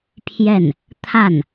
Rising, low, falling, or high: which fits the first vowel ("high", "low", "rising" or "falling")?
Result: falling